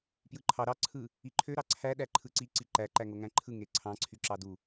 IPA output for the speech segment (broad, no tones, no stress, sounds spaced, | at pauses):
p j ɯ ǃʰ ɑ ɾ ɑ ǀʰ ɯ | i ǃʰ ø ɾ ɑ ǀʰ æ ɗ æ ǃʰ ɯ ǀ i ǀ i ǃ æ ǃ æ ŋ o ŋ æ̃ ǃʰ ɯ ŋ e ǀʰ ɑ̃ ǀʰ y ǁ ɑ d u